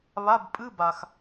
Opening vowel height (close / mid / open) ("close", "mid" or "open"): open